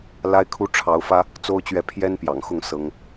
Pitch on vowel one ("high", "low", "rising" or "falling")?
high